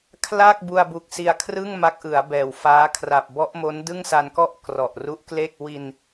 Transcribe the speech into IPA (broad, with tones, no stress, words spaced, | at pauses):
kʰla˥˩k̚ bu˧a̯bu˨˩k̚ si˧a̯kʰrɯ˥˩ŋ ma˦˥k̚ʔɯ˩˦a̯bɛː˨˩wfaː˦˥ kʰra˨˩p̚bɔ˦˥ʔmo˦˥n dɯ˥˩ŋsa˧nkɔ˥˩ʔ krɔ˨˩ʔru˦˥ʔkle˥˩k̚ wi˧n